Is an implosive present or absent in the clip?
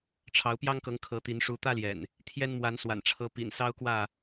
absent